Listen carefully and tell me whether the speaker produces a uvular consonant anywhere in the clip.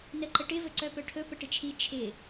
no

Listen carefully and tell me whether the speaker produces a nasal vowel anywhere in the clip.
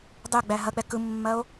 no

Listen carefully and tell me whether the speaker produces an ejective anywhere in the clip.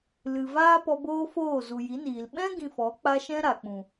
no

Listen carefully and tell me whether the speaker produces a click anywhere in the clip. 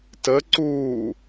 yes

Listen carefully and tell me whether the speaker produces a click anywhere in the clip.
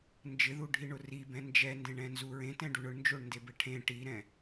no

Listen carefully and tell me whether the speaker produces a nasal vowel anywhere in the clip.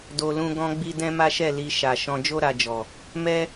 yes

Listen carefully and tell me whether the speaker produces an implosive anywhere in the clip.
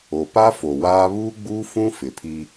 no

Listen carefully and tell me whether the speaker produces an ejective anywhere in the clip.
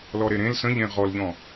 no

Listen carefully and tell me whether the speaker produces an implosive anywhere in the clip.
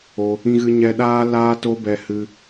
yes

